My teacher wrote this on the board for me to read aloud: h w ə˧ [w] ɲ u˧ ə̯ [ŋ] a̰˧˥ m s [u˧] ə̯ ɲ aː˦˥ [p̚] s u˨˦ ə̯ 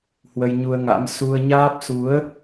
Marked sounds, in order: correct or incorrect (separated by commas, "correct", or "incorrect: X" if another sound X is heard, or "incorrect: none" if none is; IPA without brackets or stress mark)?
incorrect: j, correct, correct, correct